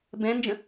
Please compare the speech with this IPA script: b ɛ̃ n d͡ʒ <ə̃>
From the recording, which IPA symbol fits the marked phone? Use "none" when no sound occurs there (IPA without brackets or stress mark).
ə̃